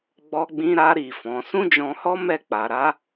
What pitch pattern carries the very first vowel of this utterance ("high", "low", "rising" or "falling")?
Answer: high